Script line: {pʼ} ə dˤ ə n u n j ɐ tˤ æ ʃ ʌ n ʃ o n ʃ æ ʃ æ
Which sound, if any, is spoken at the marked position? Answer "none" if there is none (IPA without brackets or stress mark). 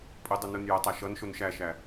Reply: pʼ